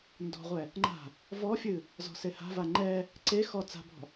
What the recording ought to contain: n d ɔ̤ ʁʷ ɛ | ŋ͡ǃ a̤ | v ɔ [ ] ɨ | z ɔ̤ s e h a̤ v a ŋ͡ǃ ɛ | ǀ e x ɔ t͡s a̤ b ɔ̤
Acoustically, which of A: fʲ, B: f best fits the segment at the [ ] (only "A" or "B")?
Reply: A